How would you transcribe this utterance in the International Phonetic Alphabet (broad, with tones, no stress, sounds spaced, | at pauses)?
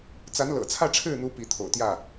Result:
t͡s a˧˥ n l ɤ̰˨˩ t͡sʰ ä˥˧ ʈ͡ʂʰ ɻ̩˥˩ n̪ u˧˥ p i˧˥ t̪ʰ o̰˨˩ ʊ̯ t̪ j ä˥˩